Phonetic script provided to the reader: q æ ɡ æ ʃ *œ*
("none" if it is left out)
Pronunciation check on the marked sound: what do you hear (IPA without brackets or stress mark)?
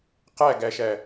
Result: æ